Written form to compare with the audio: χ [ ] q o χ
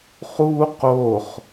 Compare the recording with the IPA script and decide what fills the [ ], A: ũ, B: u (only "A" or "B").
B